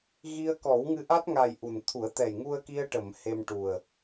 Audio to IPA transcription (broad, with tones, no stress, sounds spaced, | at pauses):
ɣ i˧ ə̯ k ɔ˨˩˦ w ŋ ɨ˧ ʔ a˦˥ t̚ ŋ a˨˩ j ʔ u˨˩ n t̪ʰ u˨˩˦ ə̯ t̪ ɛ˨˩ j ŋ u˧ ə̯ k i˧ ə̯ ʈ ə˨˩˨ m h e˧ m ʈ u˨˩ ə̯